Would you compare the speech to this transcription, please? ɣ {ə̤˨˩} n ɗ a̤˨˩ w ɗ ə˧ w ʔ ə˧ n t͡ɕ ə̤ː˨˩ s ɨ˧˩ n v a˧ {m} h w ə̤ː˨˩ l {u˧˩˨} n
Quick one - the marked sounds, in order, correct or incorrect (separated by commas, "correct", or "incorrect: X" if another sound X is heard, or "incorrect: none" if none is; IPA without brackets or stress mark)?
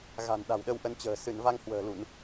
incorrect: a̤˨˩, incorrect: ŋ, correct